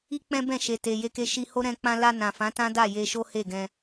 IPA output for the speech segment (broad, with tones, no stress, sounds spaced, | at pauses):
i˦ k͡p ɛ̃˦ b ɛ̃˦˨ ʃ e˨ t e˨ j e˧ k e˧ ʃ i˧ h o˦ ɾ ɛ̃˧ k͡p ã˧ l a˧ n ã˨ f ã˨˦ t ã˦ d a˦˨ j e˧ ʃ o˦ h e˦˨ ɡ ɛ̃˧